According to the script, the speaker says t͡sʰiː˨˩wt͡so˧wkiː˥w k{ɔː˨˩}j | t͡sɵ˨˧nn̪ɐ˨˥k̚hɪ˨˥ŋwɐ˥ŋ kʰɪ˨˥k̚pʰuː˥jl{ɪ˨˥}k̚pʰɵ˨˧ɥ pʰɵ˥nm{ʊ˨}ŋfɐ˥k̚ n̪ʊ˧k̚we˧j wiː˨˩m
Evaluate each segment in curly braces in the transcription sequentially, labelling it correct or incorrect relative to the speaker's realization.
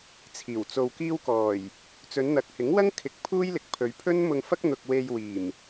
correct, incorrect: ɪ˨, incorrect: ʊ˧

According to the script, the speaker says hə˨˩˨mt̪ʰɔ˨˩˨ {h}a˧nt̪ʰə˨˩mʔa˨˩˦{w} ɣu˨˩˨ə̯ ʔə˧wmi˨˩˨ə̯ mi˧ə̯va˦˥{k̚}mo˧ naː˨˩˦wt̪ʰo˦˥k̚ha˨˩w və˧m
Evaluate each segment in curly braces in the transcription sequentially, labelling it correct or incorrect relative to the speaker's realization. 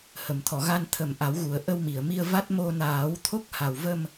incorrect: ɣ, correct, incorrect: t̚

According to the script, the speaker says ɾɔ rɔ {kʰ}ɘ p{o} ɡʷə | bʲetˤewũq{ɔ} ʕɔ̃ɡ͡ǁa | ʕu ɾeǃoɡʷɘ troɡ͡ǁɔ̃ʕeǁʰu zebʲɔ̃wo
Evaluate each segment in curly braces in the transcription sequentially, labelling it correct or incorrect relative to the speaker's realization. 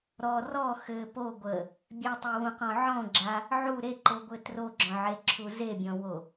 incorrect: x, correct, incorrect: ɔ̃

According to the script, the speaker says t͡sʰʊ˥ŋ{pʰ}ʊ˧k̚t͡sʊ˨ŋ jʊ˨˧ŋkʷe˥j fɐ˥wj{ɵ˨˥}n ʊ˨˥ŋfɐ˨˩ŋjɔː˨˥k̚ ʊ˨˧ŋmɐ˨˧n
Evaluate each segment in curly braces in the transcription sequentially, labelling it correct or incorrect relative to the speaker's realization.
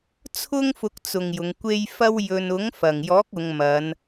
incorrect: f, incorrect: ɵ˧

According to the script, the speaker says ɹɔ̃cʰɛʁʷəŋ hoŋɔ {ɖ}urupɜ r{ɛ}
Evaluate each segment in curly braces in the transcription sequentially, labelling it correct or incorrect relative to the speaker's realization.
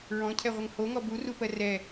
incorrect: b, correct

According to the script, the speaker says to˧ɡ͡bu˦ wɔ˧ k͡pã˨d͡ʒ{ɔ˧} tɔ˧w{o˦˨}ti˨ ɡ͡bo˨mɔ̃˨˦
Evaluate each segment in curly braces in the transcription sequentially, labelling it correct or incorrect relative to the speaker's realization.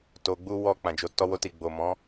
incorrect: o˧, incorrect: o˧

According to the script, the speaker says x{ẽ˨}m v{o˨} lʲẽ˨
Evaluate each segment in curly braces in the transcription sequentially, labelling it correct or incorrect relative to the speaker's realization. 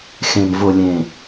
correct, correct

